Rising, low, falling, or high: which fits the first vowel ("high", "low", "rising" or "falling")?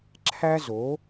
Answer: high